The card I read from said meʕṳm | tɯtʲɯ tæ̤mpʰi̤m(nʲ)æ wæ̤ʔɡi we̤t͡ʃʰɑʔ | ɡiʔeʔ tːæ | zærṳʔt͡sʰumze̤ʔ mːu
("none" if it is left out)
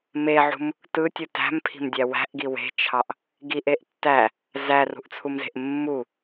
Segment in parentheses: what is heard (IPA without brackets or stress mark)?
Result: dʲ